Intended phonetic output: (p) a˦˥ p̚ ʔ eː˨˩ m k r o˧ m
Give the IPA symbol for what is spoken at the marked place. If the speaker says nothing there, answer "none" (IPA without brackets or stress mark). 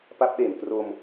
p